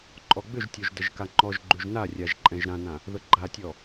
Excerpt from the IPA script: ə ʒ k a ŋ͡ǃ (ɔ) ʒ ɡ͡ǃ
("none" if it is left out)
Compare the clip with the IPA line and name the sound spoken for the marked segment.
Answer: ɔ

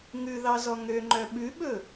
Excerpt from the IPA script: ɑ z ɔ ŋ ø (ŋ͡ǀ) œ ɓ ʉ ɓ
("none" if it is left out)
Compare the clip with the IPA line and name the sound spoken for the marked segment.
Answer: ŋ͡ǃ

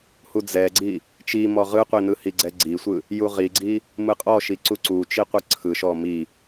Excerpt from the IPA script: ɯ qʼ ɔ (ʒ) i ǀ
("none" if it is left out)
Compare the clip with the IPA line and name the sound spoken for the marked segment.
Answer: ʃ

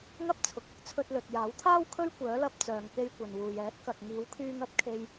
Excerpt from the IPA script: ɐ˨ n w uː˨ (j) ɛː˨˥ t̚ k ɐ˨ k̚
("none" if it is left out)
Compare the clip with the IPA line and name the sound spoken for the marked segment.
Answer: j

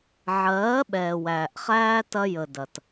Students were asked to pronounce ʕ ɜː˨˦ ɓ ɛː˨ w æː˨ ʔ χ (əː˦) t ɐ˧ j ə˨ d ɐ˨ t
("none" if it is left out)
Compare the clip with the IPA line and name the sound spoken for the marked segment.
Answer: æː˦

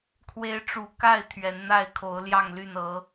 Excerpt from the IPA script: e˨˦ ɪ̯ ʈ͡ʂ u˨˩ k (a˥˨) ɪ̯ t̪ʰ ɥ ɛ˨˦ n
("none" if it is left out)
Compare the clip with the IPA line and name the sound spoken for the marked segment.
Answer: a˥˨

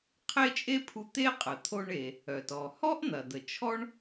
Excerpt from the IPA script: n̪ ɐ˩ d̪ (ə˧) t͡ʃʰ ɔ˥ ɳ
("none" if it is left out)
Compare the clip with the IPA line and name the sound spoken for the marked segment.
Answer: ə˩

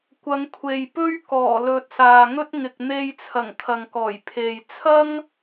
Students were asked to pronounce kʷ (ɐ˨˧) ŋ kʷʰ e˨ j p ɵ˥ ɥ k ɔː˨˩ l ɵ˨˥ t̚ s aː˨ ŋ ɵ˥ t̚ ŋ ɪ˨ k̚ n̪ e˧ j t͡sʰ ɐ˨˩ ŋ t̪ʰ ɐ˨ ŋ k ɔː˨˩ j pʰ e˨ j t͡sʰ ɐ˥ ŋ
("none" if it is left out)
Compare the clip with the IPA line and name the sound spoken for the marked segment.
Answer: ɐ˨˧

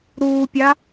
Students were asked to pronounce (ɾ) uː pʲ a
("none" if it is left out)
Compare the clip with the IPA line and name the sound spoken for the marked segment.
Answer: ɾ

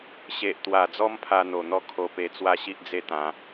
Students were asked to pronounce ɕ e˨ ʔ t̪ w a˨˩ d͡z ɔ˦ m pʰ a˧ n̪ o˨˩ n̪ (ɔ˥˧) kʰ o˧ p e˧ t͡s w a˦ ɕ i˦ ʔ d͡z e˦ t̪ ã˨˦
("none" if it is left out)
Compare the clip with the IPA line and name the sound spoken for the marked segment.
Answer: ɔ˥˧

